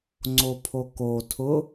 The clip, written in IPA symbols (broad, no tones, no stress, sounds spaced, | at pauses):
ŋ͡ǀ o pʰ o k o tʰ ʊ